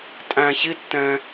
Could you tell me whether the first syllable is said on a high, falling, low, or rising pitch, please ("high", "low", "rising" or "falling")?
low